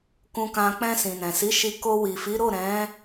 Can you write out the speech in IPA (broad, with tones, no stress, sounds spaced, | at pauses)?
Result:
k ũ˧ k ã˧ k͡p ɛ̃˧ s ĩ˨ n ɛ̃˨ s i˨˦ ʃ i˧ k o˧ w i˨ f i˨˦ ɾ o˦˨ ɾ ɛ̃˨˦